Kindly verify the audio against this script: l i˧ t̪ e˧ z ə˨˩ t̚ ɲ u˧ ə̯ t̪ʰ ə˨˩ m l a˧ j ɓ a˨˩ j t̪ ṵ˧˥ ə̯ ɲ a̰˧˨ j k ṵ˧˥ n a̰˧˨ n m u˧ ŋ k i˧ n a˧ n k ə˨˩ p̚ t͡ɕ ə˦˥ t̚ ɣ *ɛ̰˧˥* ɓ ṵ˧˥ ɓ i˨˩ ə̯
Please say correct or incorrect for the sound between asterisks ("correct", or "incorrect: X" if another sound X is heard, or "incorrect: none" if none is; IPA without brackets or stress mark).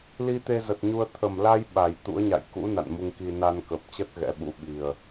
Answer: correct